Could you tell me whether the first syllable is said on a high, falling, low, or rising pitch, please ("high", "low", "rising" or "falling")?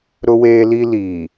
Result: high